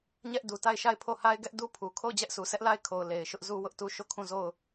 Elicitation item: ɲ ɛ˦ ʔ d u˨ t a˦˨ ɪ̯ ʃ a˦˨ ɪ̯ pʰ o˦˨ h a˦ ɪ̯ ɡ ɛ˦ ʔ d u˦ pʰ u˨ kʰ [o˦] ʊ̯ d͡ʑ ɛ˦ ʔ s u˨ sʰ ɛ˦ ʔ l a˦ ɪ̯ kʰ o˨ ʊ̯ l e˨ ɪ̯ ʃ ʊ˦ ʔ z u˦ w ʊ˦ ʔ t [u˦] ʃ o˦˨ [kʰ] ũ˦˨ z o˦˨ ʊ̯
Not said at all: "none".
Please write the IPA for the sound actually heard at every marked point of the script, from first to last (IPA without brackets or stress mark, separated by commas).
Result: o˦˨, u˦, kʰ